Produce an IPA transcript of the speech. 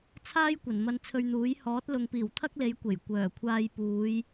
t͡sʰ aː˥ j kʷ ɐ˨˩ n m ɐ˧ n t͡sʰ ɵ˧ ɥ n̪ uː˨˥ j h ɔː˨˥ t̚ l ʊ˨ ŋ p iː˨˩ w t̪ʰ ɐ˥ k̚ l e˨˧ j kʷ e˨˩ j kʷ œː˨˩ kʷʰ aː˧ j p uː˨˧ j

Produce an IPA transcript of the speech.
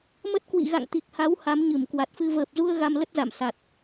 m ə˦˥ t̚ k w ḭ˧˨ ɣ a̰˧˨ ŋ t̪ i˨˩ k̚ h a˨˦ w h a˨˦ m ɲ ɨ˧˩ m k w a˨˩ t̚ f ɨ˧ v əː˨˩ p̚ z u˧ ə̯ ɣ a˧ m l ə˦˥ t̚ z a̰˧˨ m s a˨˩ t̚

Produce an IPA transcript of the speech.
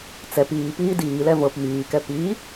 t͡s ɛ p iː p iː d iː l ɛ v ɤ p m iː k ɛ p iː

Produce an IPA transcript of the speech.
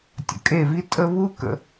tʲ ə̰˨ kʼ e˦˨ v i˦ tʼ ə˦ β u˦ k ə̰˧

